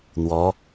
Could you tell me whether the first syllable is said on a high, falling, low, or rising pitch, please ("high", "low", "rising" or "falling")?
rising